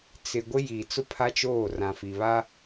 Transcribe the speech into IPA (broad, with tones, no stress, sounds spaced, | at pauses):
t͡s ɪ˨ ɡʷ ɪ˦ j iː˨ t͡s ʊ˦ pʰ a˦ t͡ʃ oː˦˨ r ã˨ f i˨ β a˦